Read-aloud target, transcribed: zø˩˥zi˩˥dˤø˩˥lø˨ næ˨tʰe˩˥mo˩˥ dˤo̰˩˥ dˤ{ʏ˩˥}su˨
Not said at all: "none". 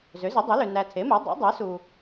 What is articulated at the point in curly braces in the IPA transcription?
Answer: ɛ˩˥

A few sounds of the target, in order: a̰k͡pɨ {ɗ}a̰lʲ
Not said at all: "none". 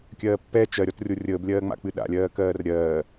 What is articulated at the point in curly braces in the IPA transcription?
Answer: ɗ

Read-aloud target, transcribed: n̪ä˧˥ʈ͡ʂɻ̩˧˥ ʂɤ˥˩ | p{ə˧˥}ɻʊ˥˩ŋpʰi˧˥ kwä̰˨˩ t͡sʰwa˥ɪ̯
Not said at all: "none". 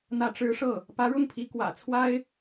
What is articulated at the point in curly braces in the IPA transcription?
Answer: ä˧˥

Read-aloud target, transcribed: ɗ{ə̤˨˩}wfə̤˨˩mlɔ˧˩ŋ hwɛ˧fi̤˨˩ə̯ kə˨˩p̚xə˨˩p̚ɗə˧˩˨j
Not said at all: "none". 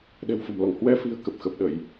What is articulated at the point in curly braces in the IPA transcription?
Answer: ɛ̤˨˩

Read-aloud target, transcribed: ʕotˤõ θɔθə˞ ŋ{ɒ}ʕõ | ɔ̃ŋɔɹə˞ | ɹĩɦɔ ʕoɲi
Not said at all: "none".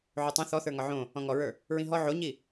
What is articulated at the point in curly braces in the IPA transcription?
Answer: ɒ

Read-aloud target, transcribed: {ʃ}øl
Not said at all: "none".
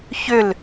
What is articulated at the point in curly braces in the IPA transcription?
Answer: ç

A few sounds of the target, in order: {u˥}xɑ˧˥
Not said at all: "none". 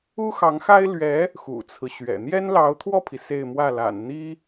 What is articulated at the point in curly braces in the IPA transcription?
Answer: u˥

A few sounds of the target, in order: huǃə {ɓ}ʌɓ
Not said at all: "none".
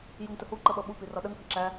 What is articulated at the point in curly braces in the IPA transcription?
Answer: ɓ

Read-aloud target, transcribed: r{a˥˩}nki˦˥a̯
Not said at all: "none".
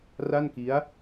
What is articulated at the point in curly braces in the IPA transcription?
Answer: a˥˩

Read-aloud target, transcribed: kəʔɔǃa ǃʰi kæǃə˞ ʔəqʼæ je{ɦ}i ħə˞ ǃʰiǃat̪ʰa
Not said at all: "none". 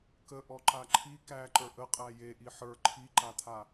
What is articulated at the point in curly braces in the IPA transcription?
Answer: ʔ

